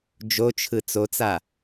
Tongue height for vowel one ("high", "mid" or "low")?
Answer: mid